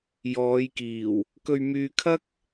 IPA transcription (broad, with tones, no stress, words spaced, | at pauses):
jɔː˨˧jkiː˨˩w | kɵ˧ɥmyː˧ kʰɐ˥k̚